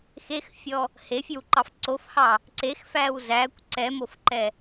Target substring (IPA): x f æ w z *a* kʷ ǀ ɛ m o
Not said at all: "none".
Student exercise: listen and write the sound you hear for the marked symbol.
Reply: æ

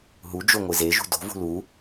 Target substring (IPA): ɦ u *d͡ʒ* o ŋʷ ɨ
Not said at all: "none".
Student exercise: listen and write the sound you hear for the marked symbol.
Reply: d͡ʒ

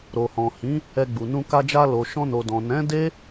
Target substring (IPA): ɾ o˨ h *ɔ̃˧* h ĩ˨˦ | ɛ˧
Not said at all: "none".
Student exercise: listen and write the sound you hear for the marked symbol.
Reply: ɔ̃˨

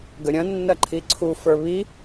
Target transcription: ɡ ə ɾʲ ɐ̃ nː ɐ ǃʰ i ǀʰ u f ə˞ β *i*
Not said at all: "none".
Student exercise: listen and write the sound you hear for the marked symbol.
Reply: i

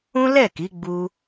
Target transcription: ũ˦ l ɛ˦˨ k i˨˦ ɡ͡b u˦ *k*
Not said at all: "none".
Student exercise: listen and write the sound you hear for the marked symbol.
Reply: none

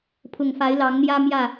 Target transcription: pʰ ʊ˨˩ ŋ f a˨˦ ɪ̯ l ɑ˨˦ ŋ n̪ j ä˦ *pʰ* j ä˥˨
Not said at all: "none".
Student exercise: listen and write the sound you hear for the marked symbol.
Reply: m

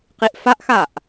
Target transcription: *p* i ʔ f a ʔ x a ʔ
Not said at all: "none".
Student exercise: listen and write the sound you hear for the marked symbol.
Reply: q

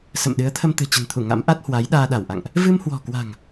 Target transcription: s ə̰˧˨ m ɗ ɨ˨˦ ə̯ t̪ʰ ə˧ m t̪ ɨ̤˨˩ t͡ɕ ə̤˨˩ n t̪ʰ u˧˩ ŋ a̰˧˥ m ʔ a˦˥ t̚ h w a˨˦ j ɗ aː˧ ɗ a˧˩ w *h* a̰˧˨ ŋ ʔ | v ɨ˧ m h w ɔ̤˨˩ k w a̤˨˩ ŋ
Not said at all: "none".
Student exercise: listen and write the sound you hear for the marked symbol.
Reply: ʔ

